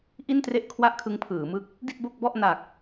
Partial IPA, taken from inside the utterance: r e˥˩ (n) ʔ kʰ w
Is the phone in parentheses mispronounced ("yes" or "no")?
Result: yes